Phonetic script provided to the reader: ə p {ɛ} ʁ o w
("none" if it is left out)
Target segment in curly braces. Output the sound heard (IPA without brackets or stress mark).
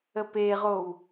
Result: e